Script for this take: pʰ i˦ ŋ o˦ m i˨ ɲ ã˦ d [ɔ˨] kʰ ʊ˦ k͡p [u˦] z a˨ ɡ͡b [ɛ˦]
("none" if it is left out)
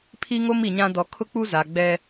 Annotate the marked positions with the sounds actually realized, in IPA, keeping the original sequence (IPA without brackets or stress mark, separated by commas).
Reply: ɔ˨, u˦, ɛ˦